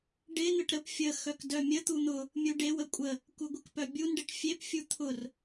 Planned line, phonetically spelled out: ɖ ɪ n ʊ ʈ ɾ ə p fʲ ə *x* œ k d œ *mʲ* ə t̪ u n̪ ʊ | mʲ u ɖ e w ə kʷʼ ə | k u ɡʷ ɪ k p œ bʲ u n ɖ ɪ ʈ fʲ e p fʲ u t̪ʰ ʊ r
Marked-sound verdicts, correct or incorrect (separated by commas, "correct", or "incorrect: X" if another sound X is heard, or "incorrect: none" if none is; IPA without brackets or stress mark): correct, correct